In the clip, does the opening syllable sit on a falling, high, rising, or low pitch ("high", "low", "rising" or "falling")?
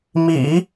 low